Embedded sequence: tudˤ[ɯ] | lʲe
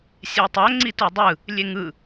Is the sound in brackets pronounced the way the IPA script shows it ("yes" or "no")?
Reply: yes